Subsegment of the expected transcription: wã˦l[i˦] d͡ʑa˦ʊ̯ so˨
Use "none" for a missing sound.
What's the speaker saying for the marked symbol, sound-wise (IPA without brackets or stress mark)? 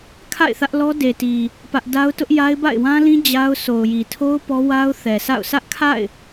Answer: ĩ˦